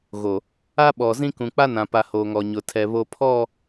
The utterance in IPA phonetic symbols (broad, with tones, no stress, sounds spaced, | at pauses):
ɣ o˨ | a˦ ɓ ɔ˨ z ĩ˦ k ũ˨ k͡p a˦ n ã˨ p a˨ h oː˨ ŋ ɔ˨ ɲ ʊ˨ tʰ ɛ˨ β o˨ pʰ ɔ˦˨